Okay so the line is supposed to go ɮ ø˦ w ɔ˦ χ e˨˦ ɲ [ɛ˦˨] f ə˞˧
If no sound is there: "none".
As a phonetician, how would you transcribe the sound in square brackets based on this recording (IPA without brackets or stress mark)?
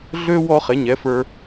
ɛ˨˦